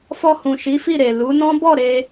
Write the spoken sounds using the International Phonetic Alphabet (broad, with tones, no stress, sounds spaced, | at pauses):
f ɔ˧ h ũ˨ ʃ i˨˦ f i˦˨ ɾ e˨ l u˨˦ n ɔ̃˦ b ɔ˦˨ ɾ e˧